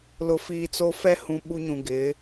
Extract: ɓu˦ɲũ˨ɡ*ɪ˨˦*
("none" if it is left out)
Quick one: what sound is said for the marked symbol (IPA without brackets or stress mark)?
ɪ˨˦